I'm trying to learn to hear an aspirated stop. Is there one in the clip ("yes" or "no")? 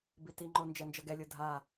no